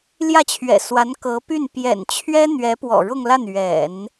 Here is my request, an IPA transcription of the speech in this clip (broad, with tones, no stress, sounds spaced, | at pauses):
l j ä˥˩ t͡ɕʰ ɥ ɛ̰˨˩ s w a˧˥ n k ɤ˧˥ p y˥˩ n p j ɛ̰˨˩ n t͡ɕʰ ɥ ɛ˥ n̪ ɥ ɛ˧˥ p w ɔ̰˨˩ ɻ ʊ˥˧ ŋ l a˥˩ n ɥ ɛ̰˨˩˦ n